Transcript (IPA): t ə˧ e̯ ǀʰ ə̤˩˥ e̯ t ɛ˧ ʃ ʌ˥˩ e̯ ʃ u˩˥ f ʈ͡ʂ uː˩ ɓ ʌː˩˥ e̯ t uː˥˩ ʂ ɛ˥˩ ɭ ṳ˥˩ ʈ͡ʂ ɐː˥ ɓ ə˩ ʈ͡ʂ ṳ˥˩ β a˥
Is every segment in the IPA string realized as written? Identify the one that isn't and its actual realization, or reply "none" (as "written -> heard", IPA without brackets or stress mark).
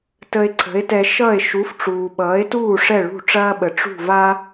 β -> v